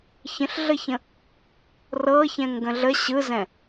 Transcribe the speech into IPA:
ç ə̃ ɬ ɮ ə ç ə̃ | r ɤ ç ɛ̃ ŋ ɡ ə̃ ɮ ə ɕ ɯ z ɛ̃

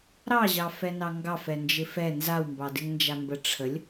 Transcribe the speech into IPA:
ɾ ɑ ʑ ɑ f ɛ n ɑ ŋ ɡ ɑ f ɛ n d͡ʒ ɪ f ɛ n z a w m b ɑ d ɪ ŋ n d͡ʒ a m b ə ʈ͡ʂʰ ə lʲ

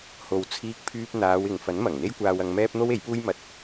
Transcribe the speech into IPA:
h o˨ w t͡sʰ iː˧ k̚ pʰ yː˧ p̚ n̪ aː˨˧ w ɪ˨ ŋ f ɐ˨˥ n m ɐ˨˩ ŋ n̪ e˥ j kʷ aː˧ w ɐ˧ ŋ m ɛː˥ p̚ n̪ o˥ w e˨˥ j p uː˥ j m ɐ˧ t̚

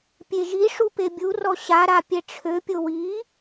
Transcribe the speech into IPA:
pʲ e ʒ i ʂ u p e bʲ u r ɔ ɕ a ɾ a pʲ ɛ ʈ͡ʂʰ ø pʲ o w i

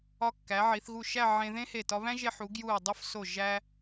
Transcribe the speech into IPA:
ɒ˧ kː æ˩˧ ʕ i˩˧ θ ɣ u˧˩ ʃ æ˥˧ ʕ ẽ˧ ð ẽ˥ h e˧˩ t ɒ˧ β æ̃˥ ʒ e˧ ħ u˩˧ ɡ j u˧˩ ɐ̯ dˤ o˥˧ f s o˧˩ ʒ æ˥

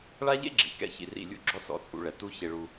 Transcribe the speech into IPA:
ɭ a˦ ʎ ḛ˦ ɡ͡ǁ ḭ˨ k ɛ̰˦ ç ḭ˧ r ḭ˦˨ lʲ ṵ˦ ɡ͡ǁ ɔ˦ s ɔ̰˧ t͡sʼ ṵ˧ ɭ ɛ˨ t u˦ ç e˧ ɭ u˧

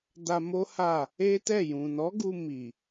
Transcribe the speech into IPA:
d a˧ m o˦ h a˦˨ | e˦ t ɛ˦˨ j ũ˨ n ɔ˨˦ ɡ u˧ m i˨

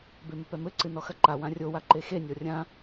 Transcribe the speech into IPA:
b e m ɘ p ɛ m ɘ ǀ ɨ n ɔ x ɐ ǃ a w ã rʲ o w a ǃ e x e nʲ ɔ rʲ ã

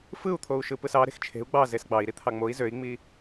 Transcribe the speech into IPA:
f ɯ u̯ t̪ʰ o u̯ ʃ ɯ p ɯ s ɑ ɾ e̤ x t͡ʃʰ e̤ u̯ ɡ͡b ɑ z e s ɡ͡b ɑ i̯ ɾ i t̪ʰ ɑ ŋ͡m o i̯ z ø i̯ ŋ͡m i

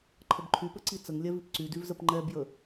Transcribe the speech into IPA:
ǃʰ ə b ǃʰ y p ə ǀ i t͡s ə ŋ lʲ ɛ v i p ǀ y d y v z ə p ŋ͡ǃ ɛ b j ə

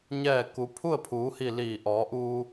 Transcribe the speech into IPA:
ɲ ɛː˥˨ k u˩˧ pʰ u˥˨ ə̯ pʰ uː˩˧ h i˧˩ l iː˧˩ ʔ ɔː˩˧ ʔ uː˧

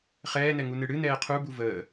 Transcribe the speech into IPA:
χ ɛː n ɛ ŋ u n ɨ ɽ ɨ n ɛː qʰ u b u v əː

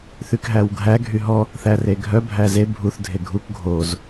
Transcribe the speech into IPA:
θ y k ɦ æ w ɡʱ æ ɡʱ y ɦ ɔ | θ æ r e ɡʱ œ bʱ æ z e bʱ u θ dʱ e ɡʱ u k ɡʱ o z

